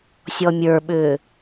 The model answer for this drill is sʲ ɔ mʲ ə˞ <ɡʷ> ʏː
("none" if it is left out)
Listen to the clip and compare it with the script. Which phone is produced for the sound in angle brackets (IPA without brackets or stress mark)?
ɓ